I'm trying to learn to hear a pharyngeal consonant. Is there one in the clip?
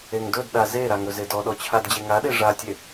no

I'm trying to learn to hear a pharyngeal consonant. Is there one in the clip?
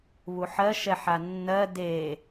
yes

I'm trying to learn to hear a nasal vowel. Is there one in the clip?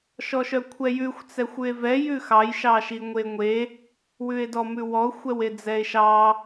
no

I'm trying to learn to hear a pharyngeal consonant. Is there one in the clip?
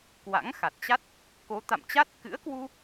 no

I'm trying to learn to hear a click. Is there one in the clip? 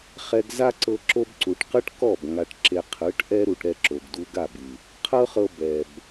yes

